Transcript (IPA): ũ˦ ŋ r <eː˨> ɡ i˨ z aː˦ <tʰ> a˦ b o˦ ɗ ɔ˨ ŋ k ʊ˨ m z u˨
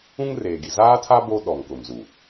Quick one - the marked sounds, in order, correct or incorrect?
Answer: correct, correct

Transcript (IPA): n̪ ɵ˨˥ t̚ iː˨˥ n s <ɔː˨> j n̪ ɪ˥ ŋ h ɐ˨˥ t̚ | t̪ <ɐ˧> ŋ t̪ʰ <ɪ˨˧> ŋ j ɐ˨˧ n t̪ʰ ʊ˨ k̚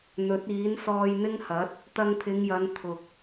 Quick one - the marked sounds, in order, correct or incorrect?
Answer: incorrect, correct, correct

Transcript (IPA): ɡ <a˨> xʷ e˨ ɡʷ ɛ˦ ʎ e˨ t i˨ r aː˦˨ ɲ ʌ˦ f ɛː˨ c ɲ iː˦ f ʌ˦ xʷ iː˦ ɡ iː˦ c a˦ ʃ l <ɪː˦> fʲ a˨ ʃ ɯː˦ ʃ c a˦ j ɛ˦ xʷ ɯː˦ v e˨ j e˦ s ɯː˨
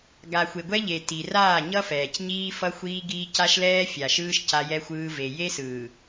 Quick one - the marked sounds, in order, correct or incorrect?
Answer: correct, incorrect

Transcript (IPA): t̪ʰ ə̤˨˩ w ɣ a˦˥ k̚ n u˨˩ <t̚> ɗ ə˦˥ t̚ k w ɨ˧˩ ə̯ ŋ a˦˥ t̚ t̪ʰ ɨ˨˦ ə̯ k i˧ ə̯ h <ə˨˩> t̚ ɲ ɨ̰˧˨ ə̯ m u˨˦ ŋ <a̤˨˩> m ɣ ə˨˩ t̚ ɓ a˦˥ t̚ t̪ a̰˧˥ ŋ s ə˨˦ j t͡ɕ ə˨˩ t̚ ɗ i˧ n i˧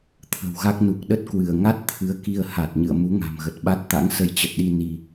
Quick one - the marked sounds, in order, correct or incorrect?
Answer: incorrect, incorrect, correct

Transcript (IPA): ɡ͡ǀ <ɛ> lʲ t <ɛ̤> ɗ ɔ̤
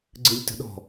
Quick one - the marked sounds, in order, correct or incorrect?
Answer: incorrect, incorrect

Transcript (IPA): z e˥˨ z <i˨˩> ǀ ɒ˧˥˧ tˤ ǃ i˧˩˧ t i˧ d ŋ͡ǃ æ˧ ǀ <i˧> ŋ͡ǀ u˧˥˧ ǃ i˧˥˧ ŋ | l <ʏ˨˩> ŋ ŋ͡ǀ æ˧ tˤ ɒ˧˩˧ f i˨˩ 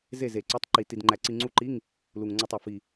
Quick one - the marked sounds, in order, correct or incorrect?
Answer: incorrect, correct, incorrect

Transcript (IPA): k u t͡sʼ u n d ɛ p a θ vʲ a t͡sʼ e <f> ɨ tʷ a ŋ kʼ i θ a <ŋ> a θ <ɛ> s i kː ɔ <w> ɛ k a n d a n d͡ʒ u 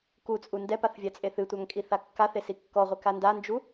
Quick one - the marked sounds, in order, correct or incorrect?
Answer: incorrect, incorrect, incorrect, incorrect

